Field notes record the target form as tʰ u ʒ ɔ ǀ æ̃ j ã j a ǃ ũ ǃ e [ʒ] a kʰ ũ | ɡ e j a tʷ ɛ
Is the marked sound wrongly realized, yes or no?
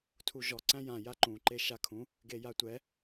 yes